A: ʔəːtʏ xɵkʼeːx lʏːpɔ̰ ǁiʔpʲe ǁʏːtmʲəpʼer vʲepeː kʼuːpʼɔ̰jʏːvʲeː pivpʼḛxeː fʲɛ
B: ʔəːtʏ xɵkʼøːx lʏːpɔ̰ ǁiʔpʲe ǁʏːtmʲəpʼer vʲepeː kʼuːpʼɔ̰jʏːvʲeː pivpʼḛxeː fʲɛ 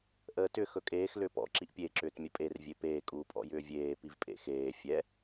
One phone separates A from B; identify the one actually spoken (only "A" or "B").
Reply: A